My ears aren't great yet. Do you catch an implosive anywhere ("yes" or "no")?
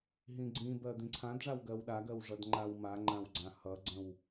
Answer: yes